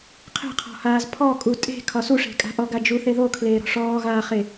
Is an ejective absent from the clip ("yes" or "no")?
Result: no